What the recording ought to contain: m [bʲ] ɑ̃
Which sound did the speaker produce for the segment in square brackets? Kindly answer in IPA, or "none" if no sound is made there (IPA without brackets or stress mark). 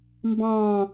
b